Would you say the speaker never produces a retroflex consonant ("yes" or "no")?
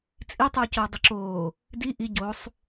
yes